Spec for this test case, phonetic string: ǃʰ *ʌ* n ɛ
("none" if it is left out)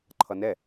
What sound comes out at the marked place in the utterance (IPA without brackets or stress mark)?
ʌ